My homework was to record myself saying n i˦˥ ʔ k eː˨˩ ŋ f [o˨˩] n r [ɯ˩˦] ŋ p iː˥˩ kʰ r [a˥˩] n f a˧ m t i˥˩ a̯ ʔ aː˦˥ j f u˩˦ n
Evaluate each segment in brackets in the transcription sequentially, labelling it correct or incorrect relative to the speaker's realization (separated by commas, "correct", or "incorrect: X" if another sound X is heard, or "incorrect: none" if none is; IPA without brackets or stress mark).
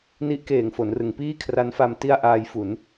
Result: incorrect: o˩˦, correct, incorrect: a˦˥